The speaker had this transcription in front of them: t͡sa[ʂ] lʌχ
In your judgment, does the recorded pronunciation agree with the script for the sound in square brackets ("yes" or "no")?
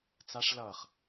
yes